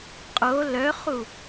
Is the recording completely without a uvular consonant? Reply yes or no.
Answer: no